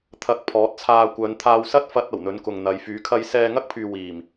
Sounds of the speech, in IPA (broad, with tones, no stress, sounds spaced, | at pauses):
t̪ʰ ɐ˧ k̚ pʰ ɔː˨˥ t̚ t͡sʰ aː˧ kʷ œː˨˧ n t̪ʰ aː˧ w s ɐ˥ t̚ f ɐ˧ t̚ ɐ˨˩ w n̪ ɵ˨˥ n k ʊ˨ ŋ n̪ ɐ˨˥ j f yː˨˥ kʰ ɐ˥ j s ɛː˧ ŋ ɐ˥ k̚ pʰ yː˨ w iː˨˩ m